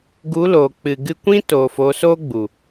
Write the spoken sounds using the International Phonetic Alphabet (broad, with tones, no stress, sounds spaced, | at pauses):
ɡ u˨˦ l oː˨ k͡p ɨ˨ ɡ ɨ˧ kʷ ĩ˦ t oː˨ f o˨˦ s oː˦ ɡ͡b u˨